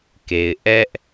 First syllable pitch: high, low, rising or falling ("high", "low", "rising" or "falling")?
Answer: low